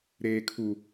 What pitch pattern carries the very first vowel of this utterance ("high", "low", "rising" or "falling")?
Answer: low